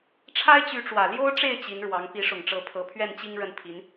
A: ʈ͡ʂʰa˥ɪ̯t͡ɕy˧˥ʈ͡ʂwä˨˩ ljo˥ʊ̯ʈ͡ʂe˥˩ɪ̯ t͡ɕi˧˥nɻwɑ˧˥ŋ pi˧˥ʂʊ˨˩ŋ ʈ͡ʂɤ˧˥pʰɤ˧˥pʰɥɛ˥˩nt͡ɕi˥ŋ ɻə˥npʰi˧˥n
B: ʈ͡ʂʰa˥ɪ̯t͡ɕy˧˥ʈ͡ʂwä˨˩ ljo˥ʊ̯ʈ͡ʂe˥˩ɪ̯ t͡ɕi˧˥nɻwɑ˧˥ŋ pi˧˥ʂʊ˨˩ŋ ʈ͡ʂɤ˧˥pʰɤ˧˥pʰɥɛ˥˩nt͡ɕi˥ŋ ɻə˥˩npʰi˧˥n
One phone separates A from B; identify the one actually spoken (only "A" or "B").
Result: B